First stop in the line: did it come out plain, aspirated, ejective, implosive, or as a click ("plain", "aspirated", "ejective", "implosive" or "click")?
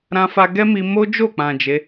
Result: plain